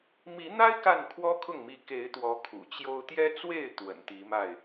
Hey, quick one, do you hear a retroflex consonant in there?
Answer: no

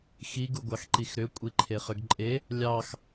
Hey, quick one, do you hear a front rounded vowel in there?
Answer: yes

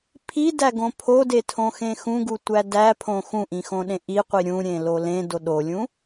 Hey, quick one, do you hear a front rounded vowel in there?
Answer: no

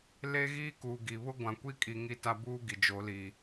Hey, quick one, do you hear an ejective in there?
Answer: yes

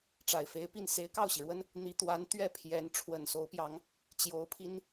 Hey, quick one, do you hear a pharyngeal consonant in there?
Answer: no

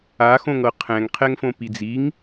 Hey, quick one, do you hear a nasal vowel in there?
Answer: yes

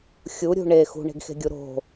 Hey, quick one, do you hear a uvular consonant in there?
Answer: no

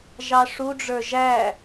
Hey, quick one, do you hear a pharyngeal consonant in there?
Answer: no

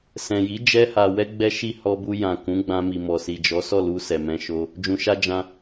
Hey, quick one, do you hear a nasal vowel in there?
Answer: yes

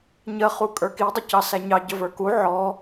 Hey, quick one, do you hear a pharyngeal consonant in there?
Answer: yes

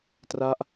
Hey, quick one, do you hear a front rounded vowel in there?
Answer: no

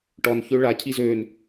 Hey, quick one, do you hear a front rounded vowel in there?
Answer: yes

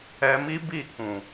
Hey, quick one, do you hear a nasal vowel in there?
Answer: yes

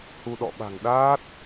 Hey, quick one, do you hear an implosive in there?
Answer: yes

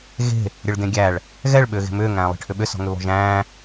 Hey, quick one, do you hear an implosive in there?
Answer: yes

